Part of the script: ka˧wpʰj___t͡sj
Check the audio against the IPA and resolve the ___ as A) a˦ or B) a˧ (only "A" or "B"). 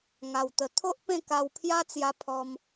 A